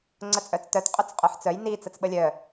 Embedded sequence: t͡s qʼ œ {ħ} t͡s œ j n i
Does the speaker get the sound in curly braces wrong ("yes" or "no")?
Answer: no